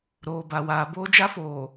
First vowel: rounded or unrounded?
rounded